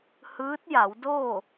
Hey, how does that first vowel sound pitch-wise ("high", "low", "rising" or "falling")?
rising